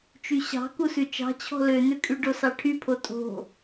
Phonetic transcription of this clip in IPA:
t͡ʃ y ɕ ɑ̤ k u s ʉ t͡ʃ ɑ̤ t͡ɕʰ ɔ̤ l ø n̪ ø kʼ y ɖ o s ɑ ʈʰ y pʰ o tʼ o̤

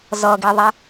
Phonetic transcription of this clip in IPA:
z ʌ ɡ i ðˤ ɛ

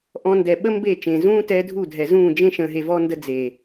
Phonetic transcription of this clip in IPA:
ʔ ɔ̃˧ n d ɛ˨ ɓ ə˦ m b e˦˨ t͡ʃ ẽː˨ z ũː˦ t ɛ˦ dʱ u˦˨ dʱ ɛ˨ z ũː˦˨ d͡ʒ ẽ˦ ʃ ə̃ː˧ ɦ e˧ v ɔ˦ n d ə˦ d͡z e˨

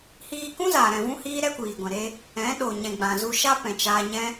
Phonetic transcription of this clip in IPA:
h iː˧ k ũ˦ z a˨ ɾ ɛ̃˨ v ũ˦ h iː˦ ɾ ɛ˦ kʷ iː˨ ɡʷ ɛ̃˨ ɾ e˧ | ɛ̃˨˦ ɗ o˨ ɲ ɛ̃˨ ɡ͡b ã˨ z u˧ ʃ a˦ p ɛ̃˨ t͡ʃ aː˧ ɲ ɛ̃˦

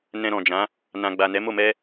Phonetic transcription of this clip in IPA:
n ɛ̃˧ ɾ ɔ̃˨ d͡ʒ ã˨˦ | n ã˨ ɡ͡b a˨ n ɛ˨˦ m o˦˨ m ɛ˧

